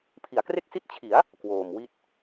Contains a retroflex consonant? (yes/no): no